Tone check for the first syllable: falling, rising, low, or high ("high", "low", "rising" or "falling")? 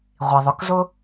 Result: low